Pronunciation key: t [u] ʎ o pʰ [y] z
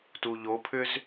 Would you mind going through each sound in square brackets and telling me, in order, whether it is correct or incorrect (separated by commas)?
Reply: correct, incorrect